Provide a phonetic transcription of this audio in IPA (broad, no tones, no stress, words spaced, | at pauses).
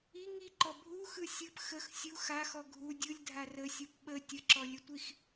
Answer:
i ŋiǃɔ bʱuxɯ sʲɯp xəx sʲu xaxɔ ɡʱu dʲɯlʲdʱar əsʲup ɓə tʲəǁɔlʲətʷix